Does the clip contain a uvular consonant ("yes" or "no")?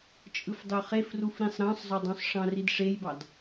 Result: yes